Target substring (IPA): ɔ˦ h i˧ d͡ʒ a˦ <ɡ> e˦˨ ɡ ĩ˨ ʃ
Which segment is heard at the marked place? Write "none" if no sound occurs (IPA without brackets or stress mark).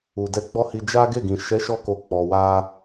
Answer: ɡ